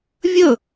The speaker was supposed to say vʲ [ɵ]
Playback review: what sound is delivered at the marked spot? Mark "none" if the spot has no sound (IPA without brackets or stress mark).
ɵ